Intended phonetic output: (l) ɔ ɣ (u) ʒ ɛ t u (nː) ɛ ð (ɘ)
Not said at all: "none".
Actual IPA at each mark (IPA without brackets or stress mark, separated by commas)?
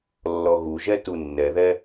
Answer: lː, u, nː, ɛ